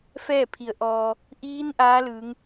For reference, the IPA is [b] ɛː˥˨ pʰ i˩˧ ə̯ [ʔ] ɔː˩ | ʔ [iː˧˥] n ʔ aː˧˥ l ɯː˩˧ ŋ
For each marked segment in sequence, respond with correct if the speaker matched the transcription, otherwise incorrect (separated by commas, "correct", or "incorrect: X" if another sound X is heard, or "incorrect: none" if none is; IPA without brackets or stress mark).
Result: incorrect: f, correct, correct